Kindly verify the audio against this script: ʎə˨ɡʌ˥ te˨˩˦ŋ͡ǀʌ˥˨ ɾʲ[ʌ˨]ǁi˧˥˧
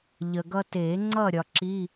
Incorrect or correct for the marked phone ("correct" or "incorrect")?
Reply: incorrect